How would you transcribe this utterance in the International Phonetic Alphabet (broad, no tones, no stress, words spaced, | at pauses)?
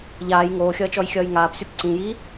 ʎaːj ŋoːxʲʌːt͡ʃɔj xʲʌːjŋaːpsʲop ǀĩjiː